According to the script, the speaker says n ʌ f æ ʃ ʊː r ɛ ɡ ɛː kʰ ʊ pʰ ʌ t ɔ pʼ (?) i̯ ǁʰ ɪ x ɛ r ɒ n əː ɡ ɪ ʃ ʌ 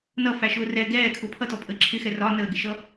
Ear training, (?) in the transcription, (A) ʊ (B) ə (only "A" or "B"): B